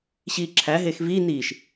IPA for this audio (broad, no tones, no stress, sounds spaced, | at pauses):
ɕ iː ǁʰ æ ɦ eː x v iː n iː ʃ